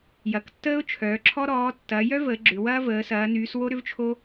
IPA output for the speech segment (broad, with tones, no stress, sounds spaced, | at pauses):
j ɐ˩˧ k tː əː˦ ʊ̯ t͡ʃʰ œː˩˧ ǁʰ ɔ˦ ɾ ɔː˩˧ tː ɐː˩˧ j œ˦ v əː˩˧ ɡ͡ǁ ʏ˩˧ w ɐː˦ v əː˩˧ s ɐː˩˧ n yː˩˧ s w o˦ ɾ ʏ˦ v t͡ʃʰ o˦